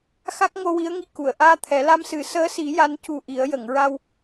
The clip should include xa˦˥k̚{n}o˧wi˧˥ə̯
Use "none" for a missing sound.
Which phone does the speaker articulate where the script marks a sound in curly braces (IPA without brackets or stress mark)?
ŋ